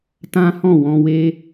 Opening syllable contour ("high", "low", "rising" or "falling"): high